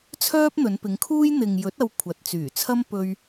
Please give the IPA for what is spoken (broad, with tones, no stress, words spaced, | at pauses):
t͡sʰœː˥p̚n̪ɵ˨˧npɪ˨˧ŋkʰuː˥j n̪ɪ˨ŋjɵ˨˥t̚ ɐ˧wkʷʰɐ˨t̚ t͡syː˨˩t͡sʰɐ˥m pɵ˧ɥ